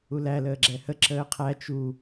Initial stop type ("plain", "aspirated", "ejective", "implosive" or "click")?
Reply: click